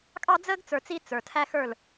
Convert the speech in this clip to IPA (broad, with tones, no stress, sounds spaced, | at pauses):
kʼ ɑ˦ d͡z əː˦ ɡ t͡s ə˞˨ t͡s i˦ t͡s ə˞˨ tʰ æ˦ x ə˞˦˨ l